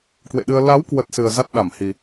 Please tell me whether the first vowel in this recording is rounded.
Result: no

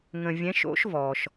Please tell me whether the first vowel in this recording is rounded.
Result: no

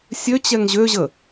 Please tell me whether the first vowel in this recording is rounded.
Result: yes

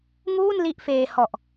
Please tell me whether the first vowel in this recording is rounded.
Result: yes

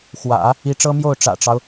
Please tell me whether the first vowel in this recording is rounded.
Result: no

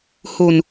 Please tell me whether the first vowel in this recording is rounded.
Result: yes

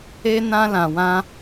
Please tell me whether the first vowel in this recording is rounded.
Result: no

